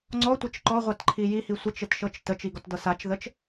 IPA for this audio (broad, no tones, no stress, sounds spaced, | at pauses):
ŋ͡ǀ ɔ tʷ ɘ t͡ʃ ǃ ɔ ʁʷ ɑ t ǃʰ i j i h i sʷ ə t͡ʃ ɘ t ʃ ɤ t͡ʃ t ə t͡ʃ i ɡ ɔ t d ɤ s a t͡ʃ ð ə t͡ʃ